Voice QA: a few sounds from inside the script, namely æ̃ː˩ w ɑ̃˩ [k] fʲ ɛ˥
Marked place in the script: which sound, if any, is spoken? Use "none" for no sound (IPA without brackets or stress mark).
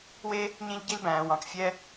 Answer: k